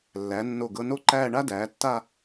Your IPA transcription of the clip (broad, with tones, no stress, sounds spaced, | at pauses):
lː æ˩˧ nː o˧˩ ɡ ɤ˧ n o˥ ǃ æː˥˧ ɳ a˥ d æː˩˧ tː a˥˧